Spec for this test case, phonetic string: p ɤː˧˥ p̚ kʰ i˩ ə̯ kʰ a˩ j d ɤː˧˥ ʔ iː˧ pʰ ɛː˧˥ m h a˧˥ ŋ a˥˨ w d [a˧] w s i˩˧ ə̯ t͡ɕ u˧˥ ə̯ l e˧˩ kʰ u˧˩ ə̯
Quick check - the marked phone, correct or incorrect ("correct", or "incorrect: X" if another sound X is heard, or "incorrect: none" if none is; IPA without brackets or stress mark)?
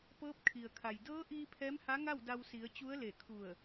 correct